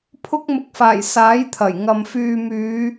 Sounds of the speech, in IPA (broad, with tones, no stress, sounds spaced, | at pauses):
pʰ ʊ˧ k̚ m ʊ˨ k̚ f aː˨˩ j s aː˨˥ j t̪ʰ ɐ˨˩ j ŋ ɐ˨ m f yː˨ m yː˨˧